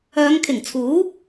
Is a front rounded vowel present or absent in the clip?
present